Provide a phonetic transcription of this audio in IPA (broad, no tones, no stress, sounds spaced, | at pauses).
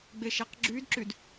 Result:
ɡ͡b e ʃ æ q ɡ͡ǁ y d ǁ y d